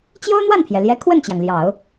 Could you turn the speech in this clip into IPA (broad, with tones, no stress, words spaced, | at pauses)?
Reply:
t͡ɕjo˥ʊ̯n̪wa˥˩npʰjɛ˩ljɛ˧˥ kʰwə˥˩nt͡ɕjɑ˩ŋ ljɑ˨˩˦ʊ̯